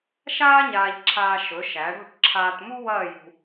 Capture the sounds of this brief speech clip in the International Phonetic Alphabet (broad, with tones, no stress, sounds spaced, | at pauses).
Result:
ʃ aː˥ ɲ aː˧ ʎ ǁʰ aː˧ ʃ ɵ˩˧ ʃ æ˩˧ ɽ o̤˥˧ ʈ ǁʰ aː˧ t m u˥ w ɐː˥˧ j ṳ˧